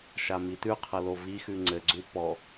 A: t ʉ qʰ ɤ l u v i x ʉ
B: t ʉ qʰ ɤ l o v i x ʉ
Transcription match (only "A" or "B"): B